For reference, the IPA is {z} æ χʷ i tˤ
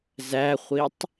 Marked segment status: correct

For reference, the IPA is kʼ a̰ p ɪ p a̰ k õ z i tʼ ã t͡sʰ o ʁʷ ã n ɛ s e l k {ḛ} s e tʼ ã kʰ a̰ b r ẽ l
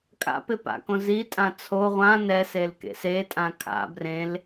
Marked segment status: correct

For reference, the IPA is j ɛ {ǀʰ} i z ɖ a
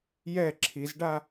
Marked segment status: incorrect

